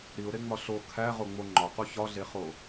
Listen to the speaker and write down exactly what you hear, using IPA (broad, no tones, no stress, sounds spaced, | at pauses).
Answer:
ɾ i ʊ̯ ɾ e ŋ͡m ɒ ɬ o kʰ æ ʁ o ŋ͡m o ŋ͡ǃ ɒ q u ç ɒ ɮ e χ o